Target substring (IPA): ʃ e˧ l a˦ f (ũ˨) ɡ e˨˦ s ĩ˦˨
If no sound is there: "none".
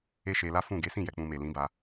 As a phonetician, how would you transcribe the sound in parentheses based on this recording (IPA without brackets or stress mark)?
ũ˦˨